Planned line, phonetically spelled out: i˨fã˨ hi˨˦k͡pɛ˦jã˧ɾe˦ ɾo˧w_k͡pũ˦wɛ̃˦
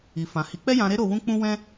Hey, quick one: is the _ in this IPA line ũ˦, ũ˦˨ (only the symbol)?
ũ˦